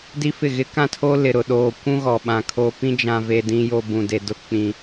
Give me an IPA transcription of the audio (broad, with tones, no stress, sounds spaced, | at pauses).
d i˦ f ɪ˦˨ ɣ ɪ˦ k ã˦˨ tʰ o˦ l ɪ˨ ɾ ʊ˨ ɗ oː˨ kʷ ũ˦ ɣ ɔ˨ ɓ ã˨ kʰ oː˨ p ĩ˦ d͡ʒ ã˨ v e˨ d ĩ˨ j o˨ b ũ˨ d e˨ d ʊ˦ k͡p ĩ˨